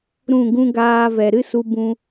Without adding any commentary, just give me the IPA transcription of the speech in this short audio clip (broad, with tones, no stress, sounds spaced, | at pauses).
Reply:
ɾ ũ˦˨ ɡ ũ˦ ɡ aː˧ v ɛ˨ ɾ ɨ˦ s u˧ b ũ˧